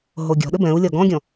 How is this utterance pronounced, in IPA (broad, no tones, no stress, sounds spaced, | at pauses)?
ɦ o ɡʲ ɔ̤ ɗ ɘ b ɛ̃ u̯ lʲ ɒ ɡ ɔ̃ ɡʲ ɔ̃